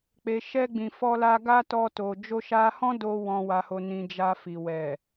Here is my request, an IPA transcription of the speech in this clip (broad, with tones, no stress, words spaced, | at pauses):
k͡pe˨ʃɛ˧ɡ͡bĩ˨ fɔ˧la˧ ɡa˦tɔ˧to˨ d͡ʒo˧ʃa˧hɔ̃˦do˧ wɔ̃˧wa˧ho˧nĩ˧ d͡ʒa˧fi˨ wɛ˨